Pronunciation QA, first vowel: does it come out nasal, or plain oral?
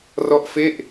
oral